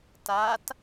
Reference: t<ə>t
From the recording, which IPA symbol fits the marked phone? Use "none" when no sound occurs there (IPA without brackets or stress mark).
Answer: a